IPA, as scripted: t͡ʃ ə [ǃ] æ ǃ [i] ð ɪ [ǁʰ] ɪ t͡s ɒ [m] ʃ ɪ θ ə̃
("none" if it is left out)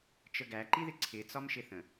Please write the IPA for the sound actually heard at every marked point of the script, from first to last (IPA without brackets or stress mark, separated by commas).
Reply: ɡ, i, ǀʰ, m